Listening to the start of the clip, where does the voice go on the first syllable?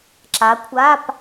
rising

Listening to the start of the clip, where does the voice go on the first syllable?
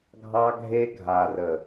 high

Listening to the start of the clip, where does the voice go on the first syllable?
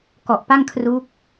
low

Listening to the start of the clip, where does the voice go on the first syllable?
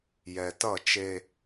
low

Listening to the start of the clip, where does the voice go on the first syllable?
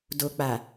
low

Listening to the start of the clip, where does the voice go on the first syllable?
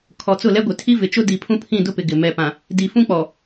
low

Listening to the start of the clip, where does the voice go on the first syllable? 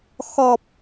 low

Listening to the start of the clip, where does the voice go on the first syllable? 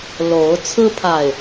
rising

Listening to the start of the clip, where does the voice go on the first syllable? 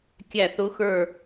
falling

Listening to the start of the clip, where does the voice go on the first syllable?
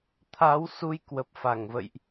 rising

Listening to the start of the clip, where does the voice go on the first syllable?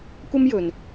high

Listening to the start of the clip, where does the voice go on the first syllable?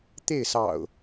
falling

